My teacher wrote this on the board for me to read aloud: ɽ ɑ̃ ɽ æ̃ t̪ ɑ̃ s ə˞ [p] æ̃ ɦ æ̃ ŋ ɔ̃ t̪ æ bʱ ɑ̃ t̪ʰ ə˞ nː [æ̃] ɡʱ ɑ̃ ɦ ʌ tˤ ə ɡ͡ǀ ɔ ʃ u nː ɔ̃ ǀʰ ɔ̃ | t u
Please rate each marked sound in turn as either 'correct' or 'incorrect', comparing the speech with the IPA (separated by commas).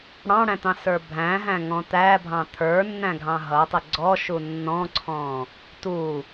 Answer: incorrect, correct